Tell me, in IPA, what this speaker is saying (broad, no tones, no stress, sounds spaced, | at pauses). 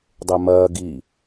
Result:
dˤ e m ɐː ɡ i